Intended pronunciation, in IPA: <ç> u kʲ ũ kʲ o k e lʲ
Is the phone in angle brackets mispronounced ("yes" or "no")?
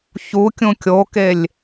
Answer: no